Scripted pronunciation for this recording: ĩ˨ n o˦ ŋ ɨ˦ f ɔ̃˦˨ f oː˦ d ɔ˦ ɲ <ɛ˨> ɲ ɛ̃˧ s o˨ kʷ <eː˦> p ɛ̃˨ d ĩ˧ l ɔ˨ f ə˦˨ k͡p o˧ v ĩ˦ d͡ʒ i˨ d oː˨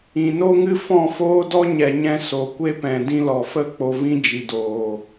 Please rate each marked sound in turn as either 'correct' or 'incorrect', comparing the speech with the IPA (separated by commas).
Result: correct, incorrect